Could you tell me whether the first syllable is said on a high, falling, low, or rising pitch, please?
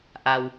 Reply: low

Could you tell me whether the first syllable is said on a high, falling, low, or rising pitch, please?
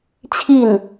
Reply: falling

